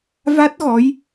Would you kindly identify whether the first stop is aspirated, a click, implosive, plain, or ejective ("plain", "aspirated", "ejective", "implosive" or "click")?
plain